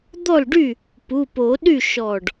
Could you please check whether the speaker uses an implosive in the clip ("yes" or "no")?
yes